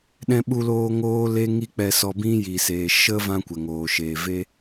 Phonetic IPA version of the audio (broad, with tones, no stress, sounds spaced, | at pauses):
ɗ ɛ̃˧ ɓ u˧ l oː˧ ŋ oː˦ l e˦ ŋ i˦ k͡p ɛ˧ s ɔ˧ b ĩ˦ j i˨ s eː˨ ʃ ə˦ v ã˦ kʷ ɛ˨ ŋ oː˨ ʃ eː˨ v e˦